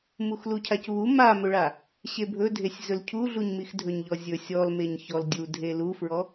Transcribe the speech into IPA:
muxlucʰacβu mamɵɭa | ɕebʱɵdʱesʲ zɵlcʰuɮuɲmix dʱɵɲʎɔzʲɵ sʲɔlmeɲ çɔldʲu dʱelufɹɔ

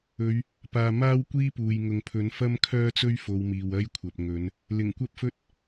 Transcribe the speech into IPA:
ɵ˨˧ɥ | paː˨ maː˥wkʷiː˥puː˨j ŋʊ˨ŋpʰɵ˨˥n fɐ˥mkʰœː˥t͡sɵ˥ɥ fo˨˧wmiː˨wɐ˥jkʷʰɐ˨p̚ ŋɵ˨˧n | lɪ˨˩ŋkʷɐ˥p̚fɵ˥t̚

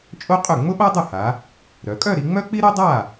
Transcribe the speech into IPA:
t͡ʃʼo˥qʼʏ˥˩ ŋ͡mʊ˥ɓa˥ dˤʊ˥˩ha˩˧ | ɾœ˩˧ kʼœ˥˧ɾi˩˧ŋ͡mœ˥k͡pi˥ ɾo˥dˤa˥˩

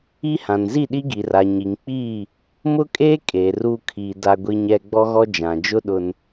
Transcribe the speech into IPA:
i˦hã˨n zi˦˨ɗi˦ɡi˨ra˨ ɲi˨ŋk͡piː˦˨ | mʊ˦kʼeː˦ kʼeː˨ruː˦ kʰiː˨ da˦ɡʷi˦ɲɛ˦ ɡ͡bɔ˦ɣɔ˦ d͡ʒã˨d͡ʒʊ˦ ɗʊ˨n

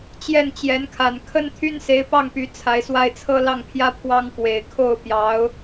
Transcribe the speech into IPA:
t͡ɕjɛ˥˩nt͡ɕjɛ˧˥nkʰa˨˩n kʰə˥nt̪ʰy˥nse˧˥ɪ̯ pɑ˥˩ŋpy˧˥ t͡sʰa˧˥ɪ̯swa˥ɪ̯ t͡sʰɤ˥lɑ˥˩ŋpʰjä˥ pʰwɑ˥ŋkwe˨˩ɪ̯ kʰo˥˩ʊ̯pjɑ˧˥ʊ̯

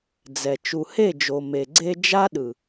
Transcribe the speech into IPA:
d͡zɛ˨ t͡ʃu˨he˦˨d͡ʒo˨ me˨ɡ͡ǀe˦ d͡ʒa˦ɗɯ˨

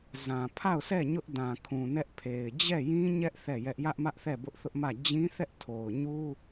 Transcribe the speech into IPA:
zã˨ pʰa˦˨ʊ̯sɛ˦˨ ɲʊ˦ʔdã˨kʰũ˨ nɛ˦ʔpʰe˨ɪ̯ d͡ʑɛ˦˨jĩ˦ɲɛ˦ʔ θɛ˦˨jɛ˦ʔ jä˦ʔmä˦ʔθɛ˦˨ bʊ˦ʔθʊ˦ʔmä˦˨ d͡ʑĩ˦θɛ˦ʔ tʰo˨ʊ̯ɲu˦

